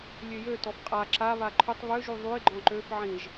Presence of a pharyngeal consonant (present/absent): present